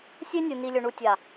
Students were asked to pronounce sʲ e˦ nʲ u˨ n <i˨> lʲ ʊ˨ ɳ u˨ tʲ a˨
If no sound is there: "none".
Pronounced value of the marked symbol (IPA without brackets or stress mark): i˨